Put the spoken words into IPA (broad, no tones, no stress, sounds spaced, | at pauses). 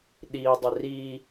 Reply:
ɗ i dˤ ɪ r i